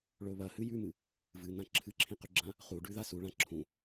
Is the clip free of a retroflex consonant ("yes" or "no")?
no